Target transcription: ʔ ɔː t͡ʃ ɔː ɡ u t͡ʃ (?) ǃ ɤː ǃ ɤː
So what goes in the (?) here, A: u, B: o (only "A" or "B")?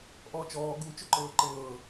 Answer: B